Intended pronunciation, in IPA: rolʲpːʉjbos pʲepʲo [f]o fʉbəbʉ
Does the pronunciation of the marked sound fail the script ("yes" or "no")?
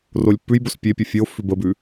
yes